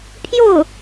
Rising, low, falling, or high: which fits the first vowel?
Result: falling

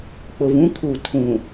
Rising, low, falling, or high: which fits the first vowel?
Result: low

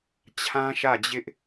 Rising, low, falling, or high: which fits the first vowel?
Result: high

